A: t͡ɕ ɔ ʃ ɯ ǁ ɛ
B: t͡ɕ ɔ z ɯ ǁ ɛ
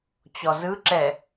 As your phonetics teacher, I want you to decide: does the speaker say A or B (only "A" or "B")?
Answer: B